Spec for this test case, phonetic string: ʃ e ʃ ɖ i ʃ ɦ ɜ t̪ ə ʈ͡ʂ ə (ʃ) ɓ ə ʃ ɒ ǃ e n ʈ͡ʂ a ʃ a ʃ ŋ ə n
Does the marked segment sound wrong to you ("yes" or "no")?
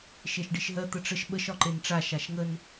no